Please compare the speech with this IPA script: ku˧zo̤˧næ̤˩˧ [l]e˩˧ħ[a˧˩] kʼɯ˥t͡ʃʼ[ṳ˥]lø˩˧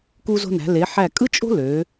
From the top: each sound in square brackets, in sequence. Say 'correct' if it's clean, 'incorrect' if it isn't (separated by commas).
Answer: correct, incorrect, incorrect